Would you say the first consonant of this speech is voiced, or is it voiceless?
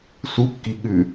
voiceless